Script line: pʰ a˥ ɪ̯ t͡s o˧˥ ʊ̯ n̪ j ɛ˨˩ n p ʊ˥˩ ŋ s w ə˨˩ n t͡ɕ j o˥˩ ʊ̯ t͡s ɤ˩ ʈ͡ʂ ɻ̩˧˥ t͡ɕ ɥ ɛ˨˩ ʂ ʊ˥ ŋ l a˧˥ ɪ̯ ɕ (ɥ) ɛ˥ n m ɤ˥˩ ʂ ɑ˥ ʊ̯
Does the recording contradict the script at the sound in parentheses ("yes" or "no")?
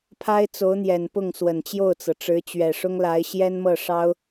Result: yes